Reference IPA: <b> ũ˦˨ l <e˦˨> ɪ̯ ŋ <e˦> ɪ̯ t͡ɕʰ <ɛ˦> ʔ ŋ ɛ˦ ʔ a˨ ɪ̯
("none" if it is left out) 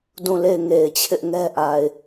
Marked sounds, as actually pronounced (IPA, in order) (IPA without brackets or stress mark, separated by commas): d, e˦˨, e˨, ɪ˦